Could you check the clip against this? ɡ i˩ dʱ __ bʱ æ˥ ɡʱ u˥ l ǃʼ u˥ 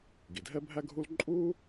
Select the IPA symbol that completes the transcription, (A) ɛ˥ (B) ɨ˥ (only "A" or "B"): A